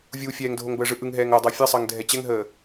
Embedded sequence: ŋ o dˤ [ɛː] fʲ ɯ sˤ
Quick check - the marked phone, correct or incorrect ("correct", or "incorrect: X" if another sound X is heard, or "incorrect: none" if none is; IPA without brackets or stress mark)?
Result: incorrect: əː